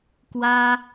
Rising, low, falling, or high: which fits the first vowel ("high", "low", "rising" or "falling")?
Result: high